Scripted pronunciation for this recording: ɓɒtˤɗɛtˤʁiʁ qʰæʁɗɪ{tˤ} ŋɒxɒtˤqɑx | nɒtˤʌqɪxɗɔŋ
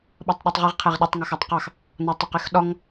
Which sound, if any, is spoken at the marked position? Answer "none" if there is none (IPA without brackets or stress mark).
tˤ